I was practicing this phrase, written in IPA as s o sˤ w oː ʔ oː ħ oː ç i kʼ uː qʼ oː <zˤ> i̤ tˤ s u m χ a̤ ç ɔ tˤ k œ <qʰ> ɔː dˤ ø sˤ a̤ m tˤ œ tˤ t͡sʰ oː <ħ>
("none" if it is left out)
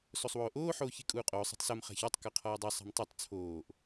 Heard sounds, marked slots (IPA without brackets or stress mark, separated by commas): sˤ, qʰ, ʔ